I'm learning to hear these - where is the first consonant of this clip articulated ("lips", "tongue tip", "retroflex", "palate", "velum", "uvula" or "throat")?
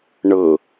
retroflex